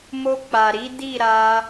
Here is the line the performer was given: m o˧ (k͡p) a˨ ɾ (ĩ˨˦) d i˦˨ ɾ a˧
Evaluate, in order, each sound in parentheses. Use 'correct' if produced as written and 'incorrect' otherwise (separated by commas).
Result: correct, incorrect